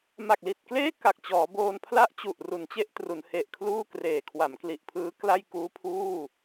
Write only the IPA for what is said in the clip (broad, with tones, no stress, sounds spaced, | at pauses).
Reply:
m a˨˩ k̚ l i˨˩ t̚ k l eː˥˩ k a˨˩ k̚ t͡ɕ ɔː˩˦ b oː˧ n pʰ l a˥˩ ʔ t͡ɕ u˨˩ ʔ r u˩˦ n t͡ɕ e˦˥ ʔ t r u˩˦ n h e˨˩ ʔ kʰ l uː˥˩ k r eː˨˩ kʰ w a˩˦ m k l i˨˩ ʔ pʰ ɯː˦˥ k l a˥˩ j k uː˦˥ pʰ uː˥˩